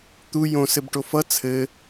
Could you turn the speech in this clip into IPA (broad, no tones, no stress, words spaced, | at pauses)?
t̪u jõ sɘbʈofʌ t͡sʰɘ